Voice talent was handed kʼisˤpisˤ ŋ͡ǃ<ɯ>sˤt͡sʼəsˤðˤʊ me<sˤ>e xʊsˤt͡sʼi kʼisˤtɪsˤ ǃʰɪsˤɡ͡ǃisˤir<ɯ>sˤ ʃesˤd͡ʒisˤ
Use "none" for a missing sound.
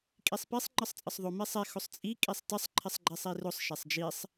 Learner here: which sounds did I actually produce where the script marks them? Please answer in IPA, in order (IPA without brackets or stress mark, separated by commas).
ɯ, sˤ, ʊ